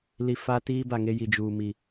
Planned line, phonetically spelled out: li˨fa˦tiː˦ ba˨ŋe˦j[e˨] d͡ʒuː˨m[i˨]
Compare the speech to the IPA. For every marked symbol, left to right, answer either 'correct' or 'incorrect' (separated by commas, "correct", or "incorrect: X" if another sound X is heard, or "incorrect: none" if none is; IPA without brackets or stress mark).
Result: incorrect: i˨, correct